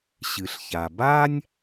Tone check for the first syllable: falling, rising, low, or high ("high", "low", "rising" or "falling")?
low